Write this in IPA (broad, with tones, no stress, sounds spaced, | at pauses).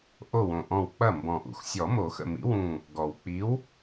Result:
ʔ o˧˩ w õ˩ ʔ ɔ̃˧˩ w k͡p ɐ˥˩ m b ɔ̃˩ ʔ ṵ˩ x sʲ ɔ˨˩˦ m o˨˩˦ x ə̰˧˩ m ḭ˨˥ w ũ˧˩ | ɡ ɔ˩ w k͡p i˨˥ w